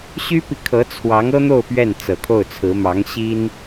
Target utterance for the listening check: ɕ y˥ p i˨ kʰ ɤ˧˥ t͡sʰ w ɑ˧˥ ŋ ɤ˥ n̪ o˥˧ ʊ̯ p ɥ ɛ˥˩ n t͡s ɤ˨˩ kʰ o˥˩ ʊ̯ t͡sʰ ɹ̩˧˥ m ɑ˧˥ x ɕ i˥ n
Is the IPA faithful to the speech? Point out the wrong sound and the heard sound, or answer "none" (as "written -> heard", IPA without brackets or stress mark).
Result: x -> ŋ